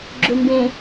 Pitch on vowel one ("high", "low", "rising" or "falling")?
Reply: low